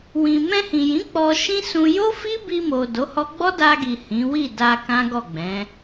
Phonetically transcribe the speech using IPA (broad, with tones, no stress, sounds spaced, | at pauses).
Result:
w ĩ˨ m ɛ̃˧ h ĩ˨ j ĩ˨˦ k͡p ɔ˧ ʃ ĩ˦ s ũ˧ j o˦ f i˦ b i˧ m o˨ d o˨˦ h ɔ˦ ɡ͡b ɔ˦ d a˧ ɡ i˨ h ĩ˨˦ w i˦˨ d a˧ k ã˦ ɡ ɔ˦˨ ɡ͡b ɛ̃˨˦